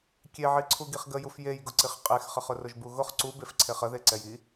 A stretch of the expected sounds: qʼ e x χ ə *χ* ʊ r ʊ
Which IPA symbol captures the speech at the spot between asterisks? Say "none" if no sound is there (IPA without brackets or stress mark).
χ